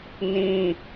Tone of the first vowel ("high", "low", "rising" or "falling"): high